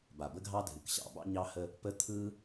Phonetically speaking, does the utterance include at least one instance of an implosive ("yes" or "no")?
no